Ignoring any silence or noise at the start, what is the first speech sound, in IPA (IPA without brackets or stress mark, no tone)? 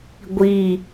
ɡʷ